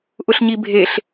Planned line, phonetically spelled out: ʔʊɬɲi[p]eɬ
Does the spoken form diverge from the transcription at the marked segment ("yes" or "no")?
yes